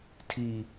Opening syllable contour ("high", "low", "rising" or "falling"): low